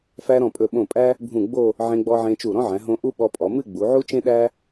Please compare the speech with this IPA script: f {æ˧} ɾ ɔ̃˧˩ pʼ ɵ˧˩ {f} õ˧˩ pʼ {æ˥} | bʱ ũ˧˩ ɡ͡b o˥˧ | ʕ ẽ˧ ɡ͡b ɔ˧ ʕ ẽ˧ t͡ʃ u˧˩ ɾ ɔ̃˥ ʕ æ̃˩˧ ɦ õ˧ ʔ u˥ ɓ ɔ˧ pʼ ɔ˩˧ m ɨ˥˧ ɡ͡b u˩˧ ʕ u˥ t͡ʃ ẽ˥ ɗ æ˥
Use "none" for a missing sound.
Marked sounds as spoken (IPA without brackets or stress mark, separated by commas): æ˧, ɓ, æ˥